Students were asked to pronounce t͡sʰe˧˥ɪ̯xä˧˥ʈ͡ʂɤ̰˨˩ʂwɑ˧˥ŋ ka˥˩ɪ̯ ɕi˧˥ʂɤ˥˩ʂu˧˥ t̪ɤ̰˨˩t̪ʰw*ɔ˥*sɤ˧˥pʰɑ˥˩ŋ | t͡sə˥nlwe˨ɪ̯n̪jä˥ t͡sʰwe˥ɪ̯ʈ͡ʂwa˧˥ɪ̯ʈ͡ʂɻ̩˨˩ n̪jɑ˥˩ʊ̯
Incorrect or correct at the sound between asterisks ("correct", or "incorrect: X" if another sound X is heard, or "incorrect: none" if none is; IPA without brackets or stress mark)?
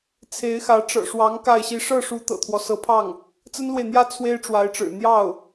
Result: incorrect: ɔ˦